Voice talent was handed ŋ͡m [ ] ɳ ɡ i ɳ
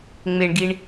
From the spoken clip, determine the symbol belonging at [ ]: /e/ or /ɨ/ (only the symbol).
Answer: e